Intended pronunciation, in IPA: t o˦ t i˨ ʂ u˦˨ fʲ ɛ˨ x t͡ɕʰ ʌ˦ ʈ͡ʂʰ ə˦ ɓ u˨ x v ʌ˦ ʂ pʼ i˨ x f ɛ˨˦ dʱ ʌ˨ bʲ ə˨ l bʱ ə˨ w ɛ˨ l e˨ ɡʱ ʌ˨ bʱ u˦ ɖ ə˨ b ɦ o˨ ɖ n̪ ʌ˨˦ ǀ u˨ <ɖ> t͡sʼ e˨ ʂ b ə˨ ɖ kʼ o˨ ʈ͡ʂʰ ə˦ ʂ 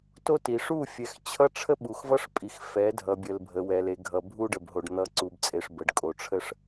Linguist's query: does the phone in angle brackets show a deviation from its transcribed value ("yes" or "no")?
yes